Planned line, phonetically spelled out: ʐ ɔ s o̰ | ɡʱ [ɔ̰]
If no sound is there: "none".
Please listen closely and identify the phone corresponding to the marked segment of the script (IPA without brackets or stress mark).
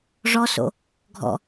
ɔ̰